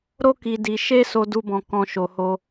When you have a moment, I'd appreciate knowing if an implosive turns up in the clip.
no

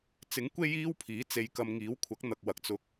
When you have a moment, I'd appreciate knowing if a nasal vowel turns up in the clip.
no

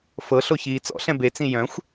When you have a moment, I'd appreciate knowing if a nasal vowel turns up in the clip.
yes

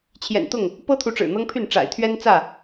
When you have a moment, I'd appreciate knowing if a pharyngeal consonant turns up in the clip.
no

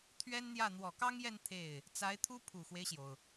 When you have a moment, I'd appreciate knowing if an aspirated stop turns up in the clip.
yes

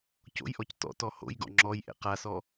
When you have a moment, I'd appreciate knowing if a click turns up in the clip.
yes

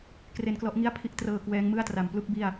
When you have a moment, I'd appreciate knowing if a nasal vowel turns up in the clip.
no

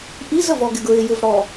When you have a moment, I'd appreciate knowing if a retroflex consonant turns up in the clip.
yes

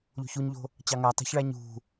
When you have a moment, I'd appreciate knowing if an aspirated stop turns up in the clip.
no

